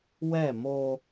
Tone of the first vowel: falling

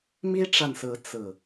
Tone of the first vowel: high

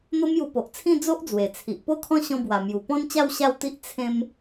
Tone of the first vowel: high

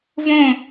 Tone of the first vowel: falling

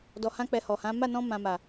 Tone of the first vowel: low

